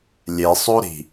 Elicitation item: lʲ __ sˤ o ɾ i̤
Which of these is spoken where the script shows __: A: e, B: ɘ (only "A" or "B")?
A